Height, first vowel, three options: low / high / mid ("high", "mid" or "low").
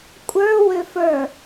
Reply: mid